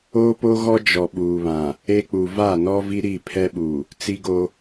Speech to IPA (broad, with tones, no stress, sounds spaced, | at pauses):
oː˦ p o˦ ɣ ɔ˦ d͡ʒ ɔ˨ ɓ uː˨ β ã˨ | e˦ k͡p u˨ v a˦˨ n ɔ˦ v i˦ ɾ i˦˨ pʰ ɛ˦ ɓ u˨ | t͡s i˦ ɡ o˦